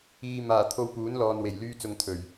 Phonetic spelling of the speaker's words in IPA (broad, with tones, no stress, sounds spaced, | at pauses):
iː˨ m aː˨˩ t̪ʰ o˧ w p uː˨˥ n l ɔː˨ n w e˨˩ j l yː˧ t͡s ʊ˨ ŋ t̪ʰ ɵ˨˩ ɥ